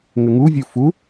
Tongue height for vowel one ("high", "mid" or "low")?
mid